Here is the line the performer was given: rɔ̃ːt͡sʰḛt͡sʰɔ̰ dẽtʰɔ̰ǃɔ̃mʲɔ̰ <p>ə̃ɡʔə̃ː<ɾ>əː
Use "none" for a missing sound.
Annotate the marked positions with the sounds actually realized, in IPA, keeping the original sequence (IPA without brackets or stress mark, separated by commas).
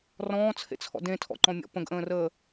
p, r